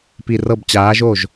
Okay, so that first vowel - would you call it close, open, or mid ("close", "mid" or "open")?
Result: close